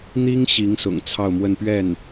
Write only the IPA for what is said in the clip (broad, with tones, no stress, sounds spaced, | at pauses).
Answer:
n̪ i˥ ŋ ɕ i˧˥ ŋ s ʊ̰˨˩ ŋ t͡sʰ ɑ˥˧ ʊ̯ m w ə˥˧ n p ɥ ɛ˥˩ n